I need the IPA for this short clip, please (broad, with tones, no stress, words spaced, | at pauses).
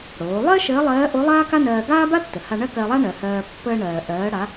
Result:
ɽoː˩˧lˠɜ˥ ʃəː˧˥lˠɜː˧˥ʔo˧˥ lˠaː˥ka˥nɜː˧ ɡaː˥ba˥tːə˩ ha˧ɳɜ˥ kɜ˧lˠa˥ ɳɜ˩˧hɜː˧ pːəː˧ɳɜː˩ ʔɜː˩˧ɽa˩˧